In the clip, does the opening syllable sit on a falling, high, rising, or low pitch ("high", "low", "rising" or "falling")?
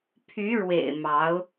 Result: rising